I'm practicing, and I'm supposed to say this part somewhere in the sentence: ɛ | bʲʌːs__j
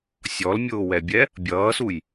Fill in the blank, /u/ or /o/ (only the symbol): u